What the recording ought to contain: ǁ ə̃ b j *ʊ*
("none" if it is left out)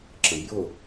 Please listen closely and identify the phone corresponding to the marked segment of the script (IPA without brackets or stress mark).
ʊ